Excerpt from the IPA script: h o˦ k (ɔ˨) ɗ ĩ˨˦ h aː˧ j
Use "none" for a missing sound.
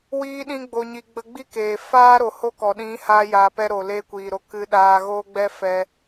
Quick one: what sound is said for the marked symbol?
ɔ˨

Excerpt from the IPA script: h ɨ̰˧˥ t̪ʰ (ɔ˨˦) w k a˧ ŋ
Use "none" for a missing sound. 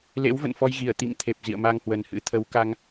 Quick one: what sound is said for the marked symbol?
ə˨˦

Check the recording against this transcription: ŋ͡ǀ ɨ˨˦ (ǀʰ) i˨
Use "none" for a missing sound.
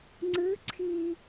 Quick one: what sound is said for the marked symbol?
ǀʰ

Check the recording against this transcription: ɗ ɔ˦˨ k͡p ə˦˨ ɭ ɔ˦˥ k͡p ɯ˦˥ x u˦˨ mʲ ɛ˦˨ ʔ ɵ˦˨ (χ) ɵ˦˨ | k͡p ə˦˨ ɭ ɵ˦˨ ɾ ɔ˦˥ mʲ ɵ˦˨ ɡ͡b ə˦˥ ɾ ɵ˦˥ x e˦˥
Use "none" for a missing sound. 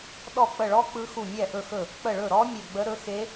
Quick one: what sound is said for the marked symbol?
x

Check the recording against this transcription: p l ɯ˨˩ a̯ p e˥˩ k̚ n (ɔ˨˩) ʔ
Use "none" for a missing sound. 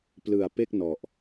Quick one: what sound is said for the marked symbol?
ɔ˨˩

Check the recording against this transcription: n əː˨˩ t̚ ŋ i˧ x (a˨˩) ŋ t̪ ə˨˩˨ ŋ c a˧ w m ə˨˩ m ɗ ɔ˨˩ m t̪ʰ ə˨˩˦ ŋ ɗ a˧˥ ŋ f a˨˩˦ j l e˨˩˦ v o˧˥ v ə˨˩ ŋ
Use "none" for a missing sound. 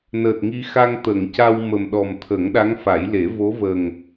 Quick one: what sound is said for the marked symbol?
a˧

